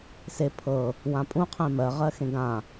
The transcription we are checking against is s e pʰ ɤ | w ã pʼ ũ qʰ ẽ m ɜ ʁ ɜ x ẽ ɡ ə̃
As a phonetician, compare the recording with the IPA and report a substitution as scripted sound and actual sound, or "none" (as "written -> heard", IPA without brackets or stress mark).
ə̃ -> ã